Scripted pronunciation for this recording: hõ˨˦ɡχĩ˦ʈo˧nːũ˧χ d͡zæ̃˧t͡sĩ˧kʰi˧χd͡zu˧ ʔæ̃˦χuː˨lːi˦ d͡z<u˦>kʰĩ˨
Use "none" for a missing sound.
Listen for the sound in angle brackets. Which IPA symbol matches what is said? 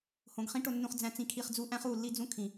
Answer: ũ˦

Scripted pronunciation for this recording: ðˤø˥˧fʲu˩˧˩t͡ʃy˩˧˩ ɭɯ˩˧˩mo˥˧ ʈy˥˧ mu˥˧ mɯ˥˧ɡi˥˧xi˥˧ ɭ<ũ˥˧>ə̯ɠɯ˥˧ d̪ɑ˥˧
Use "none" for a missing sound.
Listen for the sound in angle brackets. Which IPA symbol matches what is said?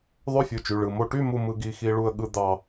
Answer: u˥˧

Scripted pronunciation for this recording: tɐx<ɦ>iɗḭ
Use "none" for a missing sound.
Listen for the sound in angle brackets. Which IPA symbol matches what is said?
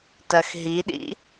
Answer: ɦ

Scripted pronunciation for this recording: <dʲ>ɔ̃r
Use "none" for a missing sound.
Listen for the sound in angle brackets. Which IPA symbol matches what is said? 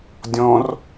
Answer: dʲ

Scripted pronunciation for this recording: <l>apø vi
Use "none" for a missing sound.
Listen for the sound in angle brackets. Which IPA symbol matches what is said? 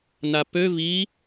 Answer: n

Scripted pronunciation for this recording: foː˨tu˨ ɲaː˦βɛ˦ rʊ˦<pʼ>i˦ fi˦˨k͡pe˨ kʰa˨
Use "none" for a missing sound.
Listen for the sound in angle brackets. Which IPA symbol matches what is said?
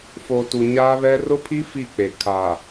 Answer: pʰ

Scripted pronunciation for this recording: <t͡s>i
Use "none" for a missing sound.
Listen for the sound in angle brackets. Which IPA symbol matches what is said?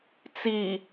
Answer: t͡s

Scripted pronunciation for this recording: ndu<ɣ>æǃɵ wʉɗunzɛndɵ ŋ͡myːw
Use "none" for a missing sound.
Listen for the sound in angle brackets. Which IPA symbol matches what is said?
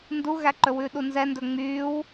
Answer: ɣ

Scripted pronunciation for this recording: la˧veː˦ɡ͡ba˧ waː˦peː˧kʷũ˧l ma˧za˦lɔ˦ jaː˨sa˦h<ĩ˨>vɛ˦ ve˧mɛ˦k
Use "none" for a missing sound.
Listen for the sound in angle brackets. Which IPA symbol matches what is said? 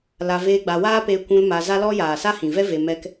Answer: ĩ˨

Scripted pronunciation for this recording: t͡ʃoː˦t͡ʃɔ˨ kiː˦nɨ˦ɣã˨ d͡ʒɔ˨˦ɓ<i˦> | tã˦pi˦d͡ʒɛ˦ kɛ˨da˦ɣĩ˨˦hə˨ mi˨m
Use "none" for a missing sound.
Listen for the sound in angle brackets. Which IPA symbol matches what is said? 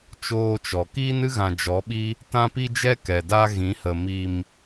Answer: i˦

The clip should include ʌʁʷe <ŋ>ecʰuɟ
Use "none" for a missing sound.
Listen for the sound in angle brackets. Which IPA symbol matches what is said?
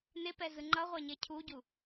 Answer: ɲ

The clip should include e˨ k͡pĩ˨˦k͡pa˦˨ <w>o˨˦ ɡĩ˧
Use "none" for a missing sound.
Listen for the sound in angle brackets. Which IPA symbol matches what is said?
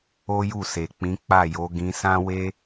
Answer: j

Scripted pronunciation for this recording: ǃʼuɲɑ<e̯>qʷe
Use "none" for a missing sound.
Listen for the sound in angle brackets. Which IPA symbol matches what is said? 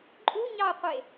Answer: o̯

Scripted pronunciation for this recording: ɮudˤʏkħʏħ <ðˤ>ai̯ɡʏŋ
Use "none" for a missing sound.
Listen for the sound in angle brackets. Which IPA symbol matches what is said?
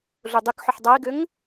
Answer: dˤ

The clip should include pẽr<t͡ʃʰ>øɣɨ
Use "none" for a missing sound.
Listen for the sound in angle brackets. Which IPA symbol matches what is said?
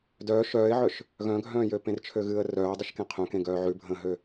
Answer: t͡ʃʰ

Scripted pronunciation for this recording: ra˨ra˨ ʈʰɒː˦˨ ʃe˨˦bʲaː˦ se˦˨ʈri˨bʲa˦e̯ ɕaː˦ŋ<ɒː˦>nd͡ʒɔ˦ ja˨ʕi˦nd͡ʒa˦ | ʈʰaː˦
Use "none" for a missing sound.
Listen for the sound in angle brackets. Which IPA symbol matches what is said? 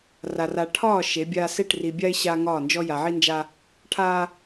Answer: ɒː˦˨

